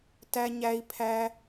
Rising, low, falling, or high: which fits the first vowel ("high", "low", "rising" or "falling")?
high